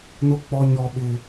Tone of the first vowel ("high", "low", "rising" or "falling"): high